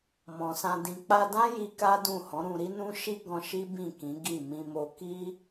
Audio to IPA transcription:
mɔ̃˨sã˧dĩ˧ k͡pa˧dã˦ ji˦ka˦dũ˦˨ hɔ̃˨˦ɾũ˧ɾi˦nũ˦ ʃi˦ɡɔ̃˧ ʃi˦ bĩ˦˨kĩ˨˦ ɡi˦˨ mĩ˧ mo˧ki˦

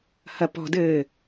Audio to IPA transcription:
hɐpɔ̤dɘː

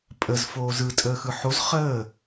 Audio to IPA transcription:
pʼəz foːzɯtʼəːxɯ ħoz χəː

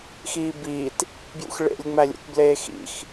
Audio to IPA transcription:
xiːbiːt | bjṵxɭḛlʲ ŋ͡mælʲṵt bleːxḭx

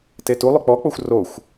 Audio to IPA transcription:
tetulˠʏ k͡pɔk͡poxʷ roxʷ

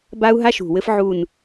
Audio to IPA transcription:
ba˥u̯ɦa˥ʃṳ˨˩wɘ˥f ʕu˦˨n

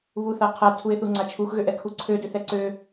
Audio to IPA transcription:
βuθaqʰa tʰuɪ̯θuŋ͡ǀat͡ʃʰux ɣøʔɛkʰuǀʰø døθɛǀø

